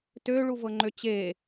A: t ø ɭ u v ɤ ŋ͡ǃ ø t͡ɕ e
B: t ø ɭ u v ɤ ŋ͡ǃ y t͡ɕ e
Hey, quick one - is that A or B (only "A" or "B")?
A